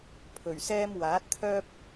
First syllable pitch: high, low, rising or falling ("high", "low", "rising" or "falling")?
low